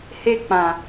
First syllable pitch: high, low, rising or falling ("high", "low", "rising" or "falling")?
high